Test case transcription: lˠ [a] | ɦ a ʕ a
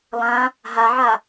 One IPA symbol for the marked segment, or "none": ã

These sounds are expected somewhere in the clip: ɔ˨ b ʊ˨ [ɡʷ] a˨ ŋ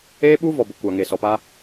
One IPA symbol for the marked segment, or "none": kʷ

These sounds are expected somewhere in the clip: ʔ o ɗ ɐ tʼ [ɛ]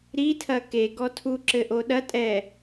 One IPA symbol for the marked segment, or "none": ɛ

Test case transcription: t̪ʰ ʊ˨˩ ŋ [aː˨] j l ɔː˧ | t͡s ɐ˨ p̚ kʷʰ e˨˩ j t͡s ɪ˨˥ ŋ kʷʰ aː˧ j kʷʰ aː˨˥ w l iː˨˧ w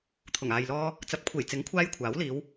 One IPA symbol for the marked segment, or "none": aː˨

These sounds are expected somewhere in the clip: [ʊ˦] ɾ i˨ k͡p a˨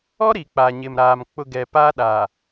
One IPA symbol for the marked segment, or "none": ɔ˦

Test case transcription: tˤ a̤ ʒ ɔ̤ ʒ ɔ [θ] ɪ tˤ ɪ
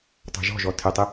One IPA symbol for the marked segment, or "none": tʰ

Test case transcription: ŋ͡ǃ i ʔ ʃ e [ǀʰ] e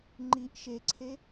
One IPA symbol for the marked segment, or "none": ǀʰ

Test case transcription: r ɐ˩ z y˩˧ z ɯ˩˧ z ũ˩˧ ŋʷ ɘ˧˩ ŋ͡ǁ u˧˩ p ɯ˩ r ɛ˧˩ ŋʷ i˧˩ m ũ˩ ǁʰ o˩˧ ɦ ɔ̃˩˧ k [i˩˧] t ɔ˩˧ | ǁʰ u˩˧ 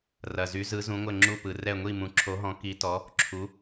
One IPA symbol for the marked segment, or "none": i˩˧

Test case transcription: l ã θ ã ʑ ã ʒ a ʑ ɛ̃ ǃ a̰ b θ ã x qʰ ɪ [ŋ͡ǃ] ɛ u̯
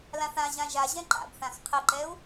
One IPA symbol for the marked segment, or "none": ǃ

